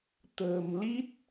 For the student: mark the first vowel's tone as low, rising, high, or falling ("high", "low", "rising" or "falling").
low